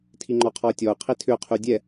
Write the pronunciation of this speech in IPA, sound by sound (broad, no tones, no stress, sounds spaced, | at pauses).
tʰ i ŋ͡ǃ ɔ qʰ ɔ ə̯ tʲ ɔ ʊ̯ qʰ i tʰ ʏ ʊ̯ qʰ y dʲ ɛ